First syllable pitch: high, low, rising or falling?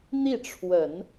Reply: falling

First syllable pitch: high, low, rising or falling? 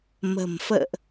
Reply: low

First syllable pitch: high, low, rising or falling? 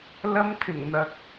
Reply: high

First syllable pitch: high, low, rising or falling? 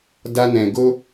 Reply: high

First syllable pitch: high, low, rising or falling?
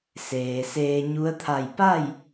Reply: low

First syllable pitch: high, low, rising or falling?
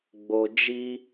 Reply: low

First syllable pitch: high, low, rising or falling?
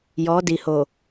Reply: rising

